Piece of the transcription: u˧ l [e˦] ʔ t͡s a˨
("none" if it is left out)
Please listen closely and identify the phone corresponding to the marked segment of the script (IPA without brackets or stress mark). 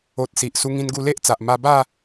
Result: e˦